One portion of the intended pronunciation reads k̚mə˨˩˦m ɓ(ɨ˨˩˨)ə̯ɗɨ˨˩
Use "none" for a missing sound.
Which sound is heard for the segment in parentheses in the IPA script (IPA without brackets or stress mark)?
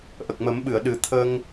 ɨ˨˩˨